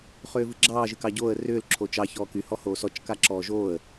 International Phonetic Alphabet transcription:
χʏːvɨɡ͡ǁɑː ʒɨkɑɟoːə̯ rʏːl ǁʰot͡ʃɑ çɔːky hɔhoːsɔt͡ʃ kaǁɔːʒoːə̯

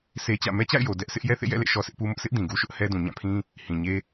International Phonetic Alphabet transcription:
sʰe˦t͡ɕä̰˦˨ mɛ˦t͡ɕa̰˦˨ɪ̯jo˨ dɛ˦ʔsɪ˦ʔ jɛ˦θḛ˦˨jɛ̰˦˨lḛ˦˨ ʃɔ˦sɪ˦ʔpu˦mʊ˦ʔ sʰɪ˦ʔ dĩ˨ɡu˦ʃʊ˦ʔ hɛ˦dũ˨ ɲã˦˨pʰĩ˦ | hĩ˨ɲe˦

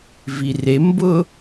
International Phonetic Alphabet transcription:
virembʊ

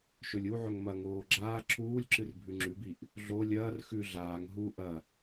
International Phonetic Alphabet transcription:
ʃɵlʲuʕɵŋ mɐŋoː ɡ͡ǁaː ǁʰuːlʲǁɨr bʱʉŋ͡ǁʉbiʔ | ɮo lʲɐːr xʉ ɮaːŋ ɦu ʔɐ

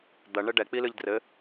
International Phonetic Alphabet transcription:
d̪ɐ ɳɘɖɛ k͡pilɨʎdrɘ

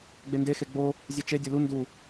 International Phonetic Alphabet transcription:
ɡ͡bendexe ɡ͡bo | zʲet͡ʃe dʲolu ndu

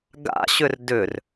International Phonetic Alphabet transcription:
ɡa̰ɕʏr dʏr

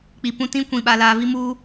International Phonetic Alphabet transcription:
k͡pi˨pũ˦tĩ˦kʷĩ˨ ɓa˨laː˨vi˦muː˦

